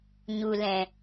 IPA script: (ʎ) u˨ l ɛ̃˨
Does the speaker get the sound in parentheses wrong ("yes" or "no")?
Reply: yes